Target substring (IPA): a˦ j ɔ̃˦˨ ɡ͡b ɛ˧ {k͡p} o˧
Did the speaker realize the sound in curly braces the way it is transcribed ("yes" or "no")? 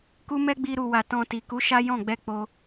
yes